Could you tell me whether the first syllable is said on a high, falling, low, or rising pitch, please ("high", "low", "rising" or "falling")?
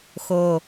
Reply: low